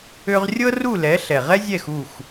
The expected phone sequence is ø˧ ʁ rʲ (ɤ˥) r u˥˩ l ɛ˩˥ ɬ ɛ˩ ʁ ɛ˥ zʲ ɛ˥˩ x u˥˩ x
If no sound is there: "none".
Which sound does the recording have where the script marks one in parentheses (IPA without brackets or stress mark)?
ɤ˥